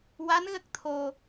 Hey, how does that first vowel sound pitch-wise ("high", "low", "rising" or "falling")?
rising